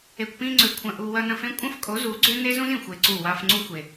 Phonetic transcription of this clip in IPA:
e˨ kʷ p ĩ˧ ŋ͡ǀ ø˨ kʷʰ ɐ̃˧ ʔ u˧ w ɐ˦ n ɐ̃˧ f ẽ˦ kʷʼ ɐ̃˦ f kʼ o˨˦ z u˨˦ ɡ͡ǀ ø˦ n e˦ z ũ˦ z ĩ˨ xʷ e˧ ǀ u˦˨ w a˧ f ŋ͡ǀ u˦ xʷ e˨

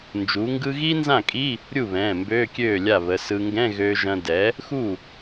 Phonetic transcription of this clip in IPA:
n d͡ʒ u˩˥ ŋ ɡ ɯ˥ ɣ iː˥ n z ã˥˩ kʼ i˧˥˧ | ɾʲ u˥˩ β ɛ̃ː˩˧˩ m b øː˧˥˧ kʲ øː˥˩ lʲ a˥˩ β ə˩˧˩ s ɯ˧ ŋ ɡ ɛ̃˧˥˧ ɣ øː˧ ʒ ɐ̃˧ d ɛ˩˥ | x u˥˩

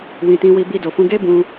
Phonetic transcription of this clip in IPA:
w ĩ˨ t ĩ˧ w i˧ b i˧ d o˨ f ũ˧ ɡ e˦ b ũ˧

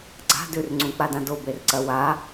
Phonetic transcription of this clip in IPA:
ɡ͡ǀ a̤ d ʉ r ŋ͡ǀ ũ k͡p a d ã d o b e r ǀ ɐ w a

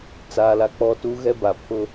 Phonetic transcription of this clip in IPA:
t͡s aː˨ l a˨ k͡p ɔ˦ t u˦ ɣ ɛ˦ b a˨ pʰ ʊ˦

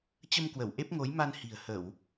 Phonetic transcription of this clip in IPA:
t͡ɕ ə˧ m k w ə˧˩ w ʔ e˦˥ p̚ ŋ o˨˦ j m a˧ n h i̤˨˩ ə̯ h ə˧˩˨ w

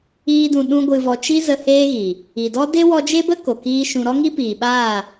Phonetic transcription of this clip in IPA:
iː˦ d ũ˧ ɗ ũ˦ ɡʷ ɨ˧ v ɔ˧ t͡ʃ i˦ z ə˧ h eː˦ ɣ i˨ | i˨ d ɔ˦ d e˦ w ɔ˧ d͡ʒ e˦ b ə˦ k o˨ k iː˦ ʃ ũ˧ ɾ ɔ˦ ŋ i˦ p iː˨ ɓ aː˦˨

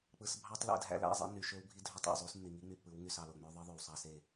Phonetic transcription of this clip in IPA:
k͡p ɯ˨ s bʱ ɑ˦ tˤ l æ̰˦˨ d ɦ æ̰˦ l æ̰˦˨ zˤ ḛ˦ nː y˨ ʃ ø˦ w bʱ i˦ dʱ ø˦ tˤ o̰˨ zˤ u˦ s nː i˨ ŋ i˦ ŋ͡m y˨ pː ɯ˨˦ w ŋ y˨ s ɑ˨ l o˨ ŋ͡m ø˦ ðˤ ɯ˦ ðˤ ø˨ w sˤ ɑ˦ s e˦˨

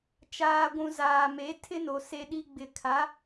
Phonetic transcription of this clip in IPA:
t͡ʃ aː˨ ɡʷ ũ˨ z aː˨ m e˨˦ tʰ ɪ˦ n o˨ s e˨ ɗ i˨ ɡ͡b ɪ˨ kʰ a˨˦

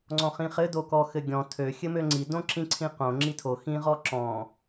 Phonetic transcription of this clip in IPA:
ŋ͡ǀ ɔ̃ χ ĩ χ ɘ d o k ɔ x ɘ ɡʲ ɔ̃ tʰ ø xʲ ɘ m ø ŋ͡ǀ i d õ ǁ ĩ ǀʰ ĩ q õ ŋ͡ǁ i tʰ o x ĩ ʁ ɔ ǁ ɔ̃

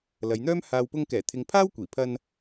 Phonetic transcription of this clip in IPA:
l ɐ˨˧ j n̪ œː˥ m h aː˨ w p ʊ˧ ŋ k ɛː˨˩ t̪ʰ ɪ˨ ŋ pʰ aː˥ w kʷ iː˨˩ pʰ ɐ˧ n

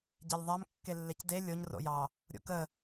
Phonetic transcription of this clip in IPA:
ɟ ɛ lʲ ðˤ a m kː e lː e c d e lʲ o ɲ r o̰ j ɑ | ɾʲ o̰ k ə

